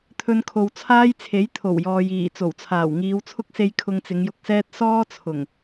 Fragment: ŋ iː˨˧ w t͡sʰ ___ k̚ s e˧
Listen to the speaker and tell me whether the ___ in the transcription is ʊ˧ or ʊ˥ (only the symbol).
ʊ˥